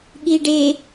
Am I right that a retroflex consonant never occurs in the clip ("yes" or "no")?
no